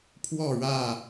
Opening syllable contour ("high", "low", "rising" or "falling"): falling